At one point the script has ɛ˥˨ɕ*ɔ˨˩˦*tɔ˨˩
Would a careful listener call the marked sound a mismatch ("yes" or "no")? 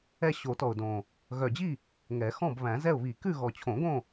yes